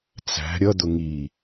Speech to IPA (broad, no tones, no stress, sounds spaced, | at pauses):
t͡s æ̤ ɾʲ ʌ d̪ ʊ ŋ i